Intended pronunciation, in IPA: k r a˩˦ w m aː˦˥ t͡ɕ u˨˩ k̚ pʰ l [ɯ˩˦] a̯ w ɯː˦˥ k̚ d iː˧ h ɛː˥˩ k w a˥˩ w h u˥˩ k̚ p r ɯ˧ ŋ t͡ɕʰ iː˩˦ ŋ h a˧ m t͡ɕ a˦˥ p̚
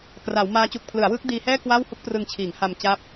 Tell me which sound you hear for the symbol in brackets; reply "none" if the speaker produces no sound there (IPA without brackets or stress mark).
ɯ˩˦